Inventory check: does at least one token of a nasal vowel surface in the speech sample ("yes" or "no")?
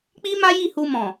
yes